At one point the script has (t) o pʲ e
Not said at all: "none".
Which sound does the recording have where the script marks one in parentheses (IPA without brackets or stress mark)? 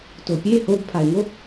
t